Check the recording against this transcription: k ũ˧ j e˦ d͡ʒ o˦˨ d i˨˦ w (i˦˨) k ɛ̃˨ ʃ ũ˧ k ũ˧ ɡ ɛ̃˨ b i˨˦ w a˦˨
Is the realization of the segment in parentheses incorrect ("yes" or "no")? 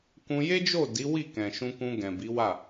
no